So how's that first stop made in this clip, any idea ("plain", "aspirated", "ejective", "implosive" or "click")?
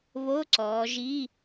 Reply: click